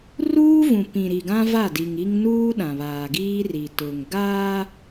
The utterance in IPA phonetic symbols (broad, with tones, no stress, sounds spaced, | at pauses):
r uː˦ v ũ˨ p ĩ˨ ɾ i˨ ɡ ã˦ v a˦˨ d i˨ ŋ i˦ ŋ n uː˦ ɗ ã˨ β aː˨ ɡ iː˦ r i˨ t ʊ˨ ŋ ɡ aː˦